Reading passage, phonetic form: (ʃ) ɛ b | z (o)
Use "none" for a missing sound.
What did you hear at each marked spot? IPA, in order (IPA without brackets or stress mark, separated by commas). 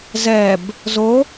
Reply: z, o